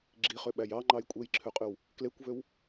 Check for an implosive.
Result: present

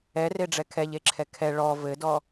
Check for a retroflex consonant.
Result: present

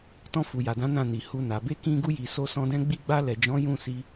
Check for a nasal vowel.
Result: present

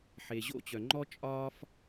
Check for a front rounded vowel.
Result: present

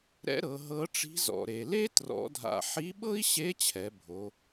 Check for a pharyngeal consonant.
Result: present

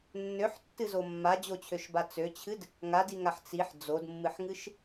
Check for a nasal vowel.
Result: absent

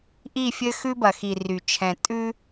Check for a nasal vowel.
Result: present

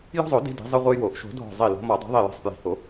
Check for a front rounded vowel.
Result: absent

